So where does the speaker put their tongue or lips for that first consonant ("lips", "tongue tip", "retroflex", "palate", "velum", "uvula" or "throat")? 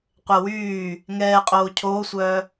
uvula